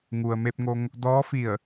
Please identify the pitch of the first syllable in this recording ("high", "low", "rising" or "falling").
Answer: low